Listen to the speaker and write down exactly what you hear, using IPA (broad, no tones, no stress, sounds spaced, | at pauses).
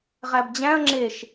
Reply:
ʁ æ b d͡ʑ æ̃ ɐ̯ ŋ͡ǁ e ʃ